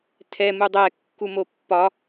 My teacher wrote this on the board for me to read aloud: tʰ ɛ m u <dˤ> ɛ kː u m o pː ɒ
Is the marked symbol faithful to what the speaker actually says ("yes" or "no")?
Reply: yes